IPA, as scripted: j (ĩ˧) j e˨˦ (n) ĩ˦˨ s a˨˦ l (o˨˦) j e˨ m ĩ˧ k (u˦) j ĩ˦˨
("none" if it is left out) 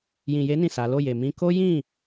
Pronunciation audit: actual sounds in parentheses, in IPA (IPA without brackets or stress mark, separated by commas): ĩ˨, n, o˦˨, o˦